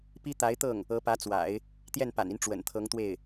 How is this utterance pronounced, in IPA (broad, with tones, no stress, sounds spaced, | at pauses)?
p i˥ t̪ a˧˥ ɪ̯ t̪ ɤ˥˩ ŋ | ɤ˧˥ p ä˧˥ t͡s w a̰˨˩˦ ɪ̯ | t̪ j ɛ˥˩ n p a̰˨˩ n i˦ n ʈ͡ʂ w ə̰˨˩ n t̪ʰ ɤ˧˥ ŋ t̪ w e˥˩ ɪ̯